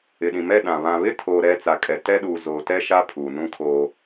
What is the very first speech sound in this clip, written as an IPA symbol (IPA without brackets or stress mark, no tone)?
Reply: ɪ